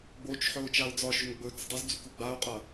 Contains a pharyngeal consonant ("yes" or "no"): yes